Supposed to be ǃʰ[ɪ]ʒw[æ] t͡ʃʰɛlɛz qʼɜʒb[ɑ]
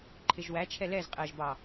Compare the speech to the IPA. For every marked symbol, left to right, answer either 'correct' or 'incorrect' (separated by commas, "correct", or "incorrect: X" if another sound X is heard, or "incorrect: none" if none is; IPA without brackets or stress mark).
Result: correct, correct, correct